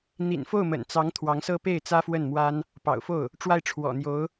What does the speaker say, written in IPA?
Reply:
n̪ ḭ˨˩ n f o˥˩ ʊ̯ m ə̰˨˩ n t͡s ɑ˧˥ ŋ t̪ʰ w ɑ˧˥ ŋ s ɤ˥ p e˥˩ ɪ̯ t͡s ä˥ f w ə˥˩ n m w a˥ n | p ɑ̰˨˩ ʊ̯ f o˥˩ ʊ̯ | ʈ͡ʂ w a˥˩ ɪ̯ ʈ͡ʂʰ w ɔ̰˨˩ n̪ j o˧˥ ʊ̯

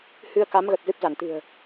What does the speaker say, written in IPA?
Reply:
h ɨ˧ ə̯ k a˨˦ m ɣ ə˨˩ t̚ z ɨ˦˥ p̚ z a˧˩ n t̪ ɨ̤˨˩ ə̯

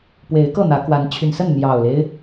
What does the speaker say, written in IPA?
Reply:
p w e˨˦ ɪ̯ k ɤ˥˨ n̪ ä˨˦ k w a˨˦ n t͡ɕʰ y˨˩ n s ə˥˨ n n̪ j ɑ˨˩ ʊ̯ l e˦ ɪ̯

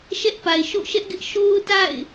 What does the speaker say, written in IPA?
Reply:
ʃ ɛ˦ ʔ p a˨ ɪ̯ ʃ o̰˦˨ ʃ ɛ˦ ʔ ɡ ɪ˦ ʔ ʃ o˦ ʊ̯ t a̰˦˨ ɪ̯

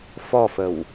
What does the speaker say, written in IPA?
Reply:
f ɔ f ə w

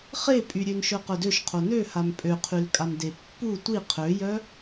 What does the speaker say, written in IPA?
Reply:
χ e pʼ y ɾʲ ø n ʃ œ q œ d ø ʃ qʰ o n ø h a m pʼ ø qʰ y l kʼ a m d e pː u tʷ i qʰ ø j œ

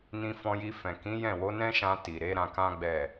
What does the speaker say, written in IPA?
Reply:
n ĩ˧ f ɔ̃˧ j i˧ f ɛ̃˨ k ĩ˨˦ j ɛ̃˦˨ w o˨˦ n ɛ̃˦ ʃ ã˧ t i˨ ɾ e˨˦ ɾ ã˧ k ã˦ ɡ͡b ɛ˦˨

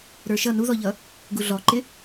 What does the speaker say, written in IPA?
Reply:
ɾ ə˞ ʃ ʌ n u ð ɔ ʎ ʌ | ɡ u ɮ ɔ ǃ ɪ

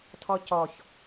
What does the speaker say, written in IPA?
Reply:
tʰ ɔ c ɔ ç

